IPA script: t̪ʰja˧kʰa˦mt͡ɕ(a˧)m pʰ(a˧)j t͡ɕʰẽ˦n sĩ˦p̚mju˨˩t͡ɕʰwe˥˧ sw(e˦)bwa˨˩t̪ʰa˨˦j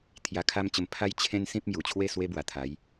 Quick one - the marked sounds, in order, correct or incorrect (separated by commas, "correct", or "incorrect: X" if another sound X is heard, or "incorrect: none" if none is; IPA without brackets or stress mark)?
incorrect: ə˧, incorrect: a˦, correct